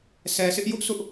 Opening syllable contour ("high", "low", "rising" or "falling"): low